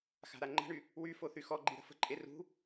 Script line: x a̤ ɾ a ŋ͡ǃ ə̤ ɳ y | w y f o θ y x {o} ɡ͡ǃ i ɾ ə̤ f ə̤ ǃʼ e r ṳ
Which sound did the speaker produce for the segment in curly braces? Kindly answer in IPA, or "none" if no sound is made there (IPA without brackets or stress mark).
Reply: ɔ